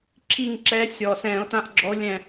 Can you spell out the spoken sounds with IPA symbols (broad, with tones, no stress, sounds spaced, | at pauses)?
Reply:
ǁʰ i˦˨ ŋ ǁ ɛ˧˥ sʲ ɔː˨˩ s ɛ̃ː˧˩˧ o̯ t ã˧˥ ʔ ɡ͡ǁ ɔ˧˥ o̯ lʲ ɛ̃˦˨